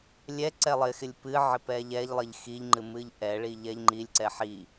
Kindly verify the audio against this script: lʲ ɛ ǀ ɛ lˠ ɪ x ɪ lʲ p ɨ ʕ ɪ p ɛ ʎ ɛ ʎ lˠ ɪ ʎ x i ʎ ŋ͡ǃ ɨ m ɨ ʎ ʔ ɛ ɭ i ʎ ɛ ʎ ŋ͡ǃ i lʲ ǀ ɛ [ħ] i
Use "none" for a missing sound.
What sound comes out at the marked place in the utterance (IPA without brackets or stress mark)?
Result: ħ